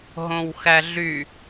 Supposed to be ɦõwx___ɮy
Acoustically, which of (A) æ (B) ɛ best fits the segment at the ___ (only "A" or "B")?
A